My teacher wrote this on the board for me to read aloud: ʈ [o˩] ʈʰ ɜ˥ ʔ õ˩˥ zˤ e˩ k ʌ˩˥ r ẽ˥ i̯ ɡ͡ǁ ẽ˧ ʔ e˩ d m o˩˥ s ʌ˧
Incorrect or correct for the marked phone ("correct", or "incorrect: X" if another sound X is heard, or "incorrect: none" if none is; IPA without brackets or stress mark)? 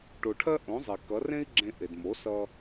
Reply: correct